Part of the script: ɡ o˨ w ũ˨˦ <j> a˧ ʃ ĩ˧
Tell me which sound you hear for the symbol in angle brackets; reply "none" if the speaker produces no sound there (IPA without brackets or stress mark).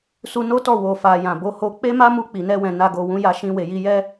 j